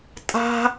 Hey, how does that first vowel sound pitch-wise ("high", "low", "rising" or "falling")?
high